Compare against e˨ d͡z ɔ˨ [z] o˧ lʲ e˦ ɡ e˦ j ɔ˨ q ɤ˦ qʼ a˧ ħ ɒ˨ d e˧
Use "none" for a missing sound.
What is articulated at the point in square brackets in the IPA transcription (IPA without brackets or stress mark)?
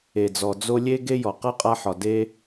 d͡z